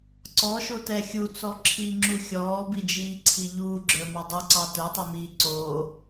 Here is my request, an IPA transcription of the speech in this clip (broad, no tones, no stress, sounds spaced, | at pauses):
ǀ ɔ ʃ o t ɛ xʲ u t͡s ɔ ǁʰ iː ŋ͡ǁ u xʲ ɔː b i d͡ʒ iː ǀʰ i ʎ uː ɡ͡ǁ ə˞ m ɑ dˤ u ǀ ɑ t ə˞ tˤ ɛ m iː ǀ o